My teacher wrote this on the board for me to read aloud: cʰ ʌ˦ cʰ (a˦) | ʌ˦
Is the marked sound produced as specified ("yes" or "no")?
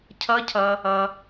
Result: no